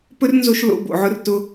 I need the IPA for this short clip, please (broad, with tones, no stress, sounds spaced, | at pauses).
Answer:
p ɵ˦ r n z o˧ ʃ l o̰˧ b o̰˨ ʕ ʊ˦ r t ʊ˦